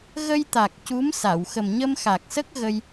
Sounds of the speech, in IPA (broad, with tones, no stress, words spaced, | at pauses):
ɣə˧jt̪a˨˩k̚ cu˧˥msa˨˩˨w xə˨˩mɲə˧mxa˨˩k̚sə˦˥k̚ ɣə˧j